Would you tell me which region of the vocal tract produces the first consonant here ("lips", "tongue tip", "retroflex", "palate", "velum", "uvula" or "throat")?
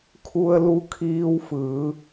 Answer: velum